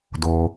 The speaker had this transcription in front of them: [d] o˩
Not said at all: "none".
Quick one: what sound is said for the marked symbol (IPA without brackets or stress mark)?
d